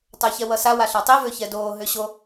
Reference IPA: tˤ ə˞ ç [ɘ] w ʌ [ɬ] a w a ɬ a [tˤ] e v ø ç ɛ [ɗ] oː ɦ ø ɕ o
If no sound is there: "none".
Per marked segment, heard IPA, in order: ɛ, s, tˤ, d

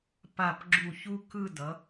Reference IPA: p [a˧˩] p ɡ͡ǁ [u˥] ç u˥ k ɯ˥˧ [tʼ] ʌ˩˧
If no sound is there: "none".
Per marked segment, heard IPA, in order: a˧˩, u˧˩, d

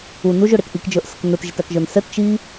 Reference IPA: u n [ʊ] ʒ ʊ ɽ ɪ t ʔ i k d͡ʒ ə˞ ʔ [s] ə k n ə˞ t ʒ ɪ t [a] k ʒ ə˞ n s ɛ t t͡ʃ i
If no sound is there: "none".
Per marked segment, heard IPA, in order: u, s, æ

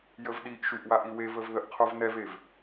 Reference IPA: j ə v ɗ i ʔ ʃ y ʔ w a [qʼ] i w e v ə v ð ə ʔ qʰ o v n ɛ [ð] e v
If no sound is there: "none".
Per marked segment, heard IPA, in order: ʔ, v

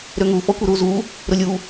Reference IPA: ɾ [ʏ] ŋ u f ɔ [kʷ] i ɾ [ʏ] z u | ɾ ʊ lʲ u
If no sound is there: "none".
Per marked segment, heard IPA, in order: ʏ, kʷ, u

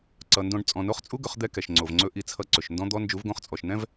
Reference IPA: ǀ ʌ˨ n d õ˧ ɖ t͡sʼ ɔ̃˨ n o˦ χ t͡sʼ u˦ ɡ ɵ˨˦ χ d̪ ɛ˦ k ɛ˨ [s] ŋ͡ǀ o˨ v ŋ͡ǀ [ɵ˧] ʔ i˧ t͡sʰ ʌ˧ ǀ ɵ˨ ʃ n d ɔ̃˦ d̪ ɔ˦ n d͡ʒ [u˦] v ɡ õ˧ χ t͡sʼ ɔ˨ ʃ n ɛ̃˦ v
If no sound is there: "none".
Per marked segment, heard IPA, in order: ʃ, ɵ˧, u˨˦

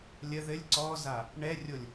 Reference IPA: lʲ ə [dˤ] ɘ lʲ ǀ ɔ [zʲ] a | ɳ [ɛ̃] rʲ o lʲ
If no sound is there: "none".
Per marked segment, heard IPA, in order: ð, z, ɛ

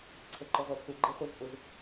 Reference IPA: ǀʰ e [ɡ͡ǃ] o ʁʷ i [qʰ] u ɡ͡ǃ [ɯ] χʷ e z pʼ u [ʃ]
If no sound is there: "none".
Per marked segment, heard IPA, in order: ǃ, pʰ, ɯ, z

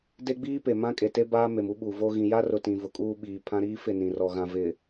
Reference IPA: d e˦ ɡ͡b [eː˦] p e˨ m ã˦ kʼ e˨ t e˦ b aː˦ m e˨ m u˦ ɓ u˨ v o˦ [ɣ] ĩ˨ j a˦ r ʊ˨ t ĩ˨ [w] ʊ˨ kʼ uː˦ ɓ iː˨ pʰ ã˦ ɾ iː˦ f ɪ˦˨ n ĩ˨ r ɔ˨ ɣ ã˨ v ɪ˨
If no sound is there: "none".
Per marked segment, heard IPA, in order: iː˦, ɣ, v

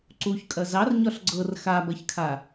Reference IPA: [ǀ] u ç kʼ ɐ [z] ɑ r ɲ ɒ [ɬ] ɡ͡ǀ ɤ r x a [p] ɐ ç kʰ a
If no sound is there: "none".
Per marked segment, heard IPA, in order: ǀ, z, ɬ, b

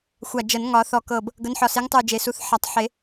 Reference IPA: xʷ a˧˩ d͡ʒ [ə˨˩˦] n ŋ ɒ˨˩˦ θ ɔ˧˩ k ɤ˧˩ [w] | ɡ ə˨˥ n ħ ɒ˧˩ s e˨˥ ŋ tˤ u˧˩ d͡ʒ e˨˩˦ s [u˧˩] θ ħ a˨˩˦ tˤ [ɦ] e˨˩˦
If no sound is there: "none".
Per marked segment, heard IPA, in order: ə˨˩˦, b, u˨˥, ħ

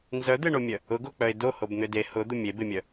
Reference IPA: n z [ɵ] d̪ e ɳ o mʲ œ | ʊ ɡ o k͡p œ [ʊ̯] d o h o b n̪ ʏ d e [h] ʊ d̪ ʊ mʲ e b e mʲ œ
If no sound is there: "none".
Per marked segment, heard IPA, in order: œ, ɪ̯, h

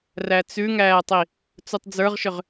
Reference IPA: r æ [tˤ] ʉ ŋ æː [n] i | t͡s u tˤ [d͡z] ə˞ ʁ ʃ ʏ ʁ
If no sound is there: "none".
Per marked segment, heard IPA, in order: t͡s, tˤ, d͡z

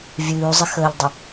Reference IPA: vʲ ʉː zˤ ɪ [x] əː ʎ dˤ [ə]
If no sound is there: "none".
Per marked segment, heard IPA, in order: x, ə

